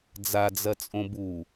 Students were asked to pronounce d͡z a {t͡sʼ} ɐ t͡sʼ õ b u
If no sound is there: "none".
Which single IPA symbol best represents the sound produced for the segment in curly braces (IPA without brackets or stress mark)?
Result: d͡z